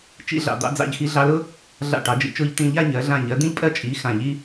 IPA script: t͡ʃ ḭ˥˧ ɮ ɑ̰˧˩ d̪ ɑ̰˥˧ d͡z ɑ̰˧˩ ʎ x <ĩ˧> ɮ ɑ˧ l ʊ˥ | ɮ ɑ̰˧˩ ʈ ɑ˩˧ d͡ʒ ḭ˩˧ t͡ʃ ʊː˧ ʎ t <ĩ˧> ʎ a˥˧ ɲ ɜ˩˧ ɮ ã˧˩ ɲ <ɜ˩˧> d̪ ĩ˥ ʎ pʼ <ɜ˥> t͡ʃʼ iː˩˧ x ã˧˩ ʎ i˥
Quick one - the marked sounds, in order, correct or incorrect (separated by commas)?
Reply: incorrect, incorrect, correct, correct